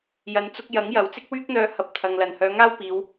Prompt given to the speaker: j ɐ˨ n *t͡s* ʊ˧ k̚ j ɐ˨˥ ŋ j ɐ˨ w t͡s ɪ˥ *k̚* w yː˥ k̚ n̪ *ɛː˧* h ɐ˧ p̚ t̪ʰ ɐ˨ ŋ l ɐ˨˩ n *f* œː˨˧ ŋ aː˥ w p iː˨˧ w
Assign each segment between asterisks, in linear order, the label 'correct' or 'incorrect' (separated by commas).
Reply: correct, correct, incorrect, incorrect